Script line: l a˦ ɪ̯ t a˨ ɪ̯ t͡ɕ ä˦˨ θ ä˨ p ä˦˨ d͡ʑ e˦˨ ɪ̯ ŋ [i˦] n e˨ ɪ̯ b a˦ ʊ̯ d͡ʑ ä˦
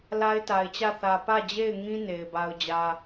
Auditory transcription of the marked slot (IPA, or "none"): ĩ˦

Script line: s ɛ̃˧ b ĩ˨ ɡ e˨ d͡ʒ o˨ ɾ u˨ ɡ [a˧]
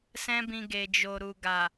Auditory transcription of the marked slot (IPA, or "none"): a˨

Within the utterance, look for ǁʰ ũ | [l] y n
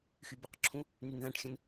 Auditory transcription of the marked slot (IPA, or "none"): n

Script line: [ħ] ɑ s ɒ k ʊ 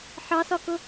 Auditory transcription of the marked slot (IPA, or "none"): ħ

